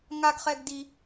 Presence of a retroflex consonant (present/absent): absent